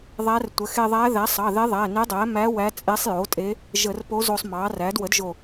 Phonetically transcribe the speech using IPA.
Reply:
ðˤæ˧˥rtʷə˩˥ xe˧ðˤæ˧˥ ðæ˩˥sˤɑ˩˧˩ðe˧˥ ðˤæ˩˧˩ne˧˥dˤæ˩˥mæ˧˥ wæ˧˥t͡sʼe˧˥sˤjo˩˥tʼe˧˥ | ʒə˧˩˧rpo˧˥ zo˧sˤmɑ˩˥ræ˩˥d wə˩˥dʒo˧˩

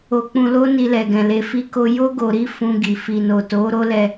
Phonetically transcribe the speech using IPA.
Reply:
o˧k͡pũ˧lo˦ ni˧lɛ˨ɡɛ̃˨ le˨fi˧ko˧ jo˦ ɡo˧ɾi˦ fũ˧ɡi˨ fi˨no˨ to˨˦ ɾo˦lɛ˧

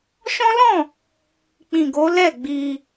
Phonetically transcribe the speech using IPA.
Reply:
ʃɔ̃˦lɔ̃˦˨ | k͡pĩ˨ɡo˨˦ lɛ˦˨ɡ͡bi˧

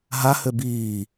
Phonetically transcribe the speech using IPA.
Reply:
ɦahø biː

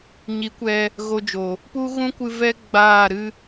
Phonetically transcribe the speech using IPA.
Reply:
ɲi˨˦kʷɛ˧ | ɣo˧d͡ʒo˨ | pu˦ɣũ˦kʷɨ˧ vɛ˦ ɡ͡baː˦˨ɾɨ˦

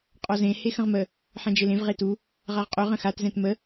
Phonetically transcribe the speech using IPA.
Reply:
qʼɔzẽ hexə̃ʁmə | ħɛ̃d͡ʒelẽv ʁetu | ʁaʁqʼø ʁə̃xat zɛ̃tmə

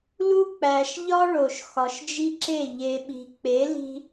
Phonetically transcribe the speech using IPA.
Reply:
lu˦k͡pæ˨ʃ ʎɒ˦ ɭo˨ʃxɒ˨ʃd͡ʒi˦ǁe˦˨ ʎe˨ɓi̤˨k͡pe˨˦ li̤˦

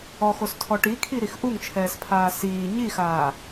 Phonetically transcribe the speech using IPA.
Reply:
ɔxostʰɔ ʈikʰiɾix ʔuŋt͡ʃʰɛːspʰaː siː ɲixaː

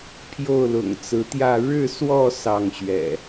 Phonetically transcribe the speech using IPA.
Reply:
pʰjo˥˨ʊ̯lʊ̰˨˩ŋt͡sɹ̩˨˦t̪jä˥˨ ɻɻ̩˥˨swɔ˥˨ sɑ˥˨ŋɕɥɛ̰˨˩

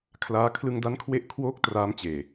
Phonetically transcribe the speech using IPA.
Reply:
kʰlaː˦˥ kʰlɯ˧ŋda˦˥nkʰwe˦˥ʔ kʰwoː˦˥k̚ traː˦˥mt͡ɕeː˨˩

